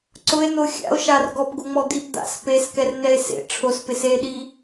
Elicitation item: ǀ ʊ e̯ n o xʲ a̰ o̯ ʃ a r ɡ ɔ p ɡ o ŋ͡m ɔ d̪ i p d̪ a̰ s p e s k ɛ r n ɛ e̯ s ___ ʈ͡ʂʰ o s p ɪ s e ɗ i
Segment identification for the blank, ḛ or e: ḛ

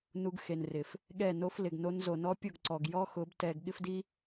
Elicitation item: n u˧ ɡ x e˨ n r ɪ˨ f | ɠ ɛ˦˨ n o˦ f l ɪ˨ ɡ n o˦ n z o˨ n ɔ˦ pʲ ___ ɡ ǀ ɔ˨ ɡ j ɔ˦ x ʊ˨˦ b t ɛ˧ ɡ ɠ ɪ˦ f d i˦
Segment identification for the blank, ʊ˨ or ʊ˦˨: ʊ˦˨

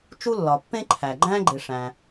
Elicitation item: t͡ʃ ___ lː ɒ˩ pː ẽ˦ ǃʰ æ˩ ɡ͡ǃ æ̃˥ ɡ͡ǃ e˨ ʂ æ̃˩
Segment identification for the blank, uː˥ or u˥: u˥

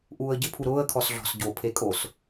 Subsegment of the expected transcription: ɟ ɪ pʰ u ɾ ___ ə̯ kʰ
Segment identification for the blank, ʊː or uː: ʊː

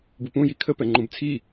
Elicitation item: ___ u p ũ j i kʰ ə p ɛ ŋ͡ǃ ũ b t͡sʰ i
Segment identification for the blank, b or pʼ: b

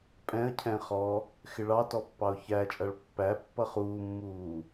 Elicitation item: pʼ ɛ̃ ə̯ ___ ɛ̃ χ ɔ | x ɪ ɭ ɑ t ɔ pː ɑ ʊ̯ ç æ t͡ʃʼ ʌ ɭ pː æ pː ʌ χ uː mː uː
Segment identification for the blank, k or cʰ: cʰ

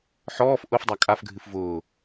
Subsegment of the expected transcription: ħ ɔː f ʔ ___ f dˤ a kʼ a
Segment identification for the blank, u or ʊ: ʊ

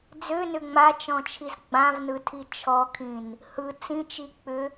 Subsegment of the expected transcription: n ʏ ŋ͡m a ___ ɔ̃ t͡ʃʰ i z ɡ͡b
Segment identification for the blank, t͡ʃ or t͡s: t͡ʃ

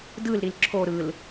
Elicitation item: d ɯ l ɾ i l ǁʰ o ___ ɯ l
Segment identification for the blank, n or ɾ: ɾ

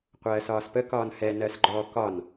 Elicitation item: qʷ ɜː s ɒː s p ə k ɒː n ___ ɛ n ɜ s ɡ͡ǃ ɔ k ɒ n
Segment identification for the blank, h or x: h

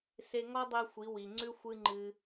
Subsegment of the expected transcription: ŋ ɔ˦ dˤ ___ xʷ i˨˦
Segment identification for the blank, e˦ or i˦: e˦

